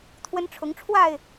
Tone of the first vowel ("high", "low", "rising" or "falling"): high